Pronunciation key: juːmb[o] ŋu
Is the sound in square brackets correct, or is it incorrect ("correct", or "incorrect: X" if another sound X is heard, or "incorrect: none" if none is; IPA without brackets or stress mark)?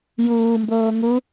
incorrect: oː